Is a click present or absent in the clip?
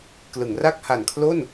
absent